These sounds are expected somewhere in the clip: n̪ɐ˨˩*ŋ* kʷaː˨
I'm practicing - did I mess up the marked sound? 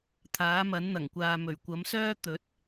no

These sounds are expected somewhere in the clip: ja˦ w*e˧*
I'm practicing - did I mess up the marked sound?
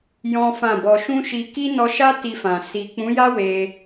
no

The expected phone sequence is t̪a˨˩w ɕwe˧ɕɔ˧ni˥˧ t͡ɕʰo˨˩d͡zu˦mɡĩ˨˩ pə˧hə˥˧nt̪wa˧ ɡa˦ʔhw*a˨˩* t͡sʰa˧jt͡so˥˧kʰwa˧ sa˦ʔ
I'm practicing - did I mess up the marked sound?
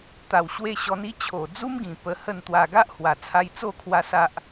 no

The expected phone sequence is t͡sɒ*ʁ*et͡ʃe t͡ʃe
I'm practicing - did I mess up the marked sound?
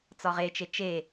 no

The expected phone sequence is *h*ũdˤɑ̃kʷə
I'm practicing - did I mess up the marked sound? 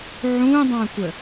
yes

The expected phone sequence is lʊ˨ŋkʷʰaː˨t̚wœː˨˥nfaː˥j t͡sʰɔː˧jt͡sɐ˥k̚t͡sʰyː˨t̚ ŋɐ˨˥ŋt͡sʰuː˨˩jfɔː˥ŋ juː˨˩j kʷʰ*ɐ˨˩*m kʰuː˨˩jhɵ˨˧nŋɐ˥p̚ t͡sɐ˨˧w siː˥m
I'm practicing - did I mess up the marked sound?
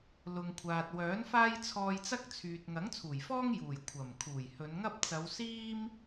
no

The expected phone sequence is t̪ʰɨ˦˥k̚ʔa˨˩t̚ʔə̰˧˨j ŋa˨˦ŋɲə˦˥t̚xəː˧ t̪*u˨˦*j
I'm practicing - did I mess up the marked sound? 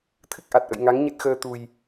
yes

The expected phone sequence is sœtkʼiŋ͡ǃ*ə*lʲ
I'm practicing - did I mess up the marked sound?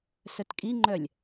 yes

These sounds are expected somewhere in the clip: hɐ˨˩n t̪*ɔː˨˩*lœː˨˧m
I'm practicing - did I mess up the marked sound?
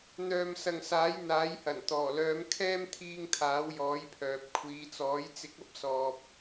no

